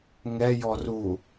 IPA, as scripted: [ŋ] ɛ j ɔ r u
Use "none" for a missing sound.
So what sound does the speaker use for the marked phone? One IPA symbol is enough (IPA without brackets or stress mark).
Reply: ŋ